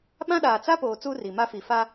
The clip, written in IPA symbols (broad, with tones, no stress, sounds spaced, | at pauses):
ɓ ã˦ ɗ aː˨ t͡s a˦ p oː˨ t͡s u˦ r i˨ m a˦ f i˨ f a˦